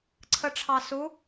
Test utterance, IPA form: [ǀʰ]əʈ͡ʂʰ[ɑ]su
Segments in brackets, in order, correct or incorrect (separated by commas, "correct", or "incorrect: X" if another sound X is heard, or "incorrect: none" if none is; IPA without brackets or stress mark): correct, correct